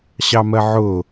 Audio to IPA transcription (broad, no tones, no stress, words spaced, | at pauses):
ɕɑmɜʕʊ